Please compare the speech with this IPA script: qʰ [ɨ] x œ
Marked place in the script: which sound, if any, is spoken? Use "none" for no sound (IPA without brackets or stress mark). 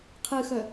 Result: ɨ